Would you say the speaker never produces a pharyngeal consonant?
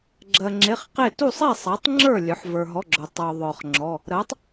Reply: no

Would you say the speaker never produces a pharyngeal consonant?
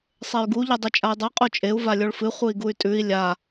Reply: yes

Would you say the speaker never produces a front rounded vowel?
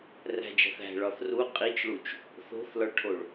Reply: yes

